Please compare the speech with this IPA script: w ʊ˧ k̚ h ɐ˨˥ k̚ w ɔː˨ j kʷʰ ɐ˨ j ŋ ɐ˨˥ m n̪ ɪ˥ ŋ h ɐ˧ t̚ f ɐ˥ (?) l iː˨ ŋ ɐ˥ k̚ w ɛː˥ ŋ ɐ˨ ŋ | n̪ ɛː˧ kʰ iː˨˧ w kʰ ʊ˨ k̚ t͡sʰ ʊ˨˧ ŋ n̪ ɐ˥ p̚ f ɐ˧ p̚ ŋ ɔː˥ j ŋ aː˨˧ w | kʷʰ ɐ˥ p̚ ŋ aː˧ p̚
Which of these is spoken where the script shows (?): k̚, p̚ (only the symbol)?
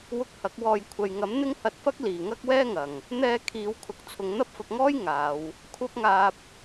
k̚